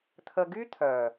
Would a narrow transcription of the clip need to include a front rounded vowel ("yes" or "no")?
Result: yes